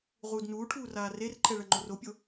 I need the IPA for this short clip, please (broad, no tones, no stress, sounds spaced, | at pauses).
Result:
ʁ uː d n uː ʈʰ uː r aː r e r ǃʰ ɛ ɭ ɐ ŋ͡ǃ o r o pʲ o